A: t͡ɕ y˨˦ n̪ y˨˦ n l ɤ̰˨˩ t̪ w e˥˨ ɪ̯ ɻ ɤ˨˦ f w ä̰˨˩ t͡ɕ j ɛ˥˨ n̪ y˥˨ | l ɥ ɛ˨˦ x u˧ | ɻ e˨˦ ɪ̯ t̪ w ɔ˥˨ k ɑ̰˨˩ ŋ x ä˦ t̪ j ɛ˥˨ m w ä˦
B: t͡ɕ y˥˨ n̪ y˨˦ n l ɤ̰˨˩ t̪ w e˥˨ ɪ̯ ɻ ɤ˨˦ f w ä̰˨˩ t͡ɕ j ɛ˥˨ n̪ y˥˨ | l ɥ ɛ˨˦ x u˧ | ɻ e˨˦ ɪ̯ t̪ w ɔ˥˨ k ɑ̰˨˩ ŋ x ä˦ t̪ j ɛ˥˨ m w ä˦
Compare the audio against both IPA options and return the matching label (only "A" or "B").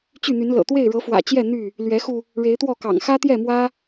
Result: B